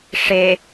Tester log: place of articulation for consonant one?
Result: retroflex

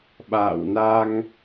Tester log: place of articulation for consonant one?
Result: labial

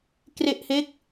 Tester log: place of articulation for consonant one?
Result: velar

